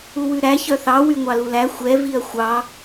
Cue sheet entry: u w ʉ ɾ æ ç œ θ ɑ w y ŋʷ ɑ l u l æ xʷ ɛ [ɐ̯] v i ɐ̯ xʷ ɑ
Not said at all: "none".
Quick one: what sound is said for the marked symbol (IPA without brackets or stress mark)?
none